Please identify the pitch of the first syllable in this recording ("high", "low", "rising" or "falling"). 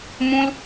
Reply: high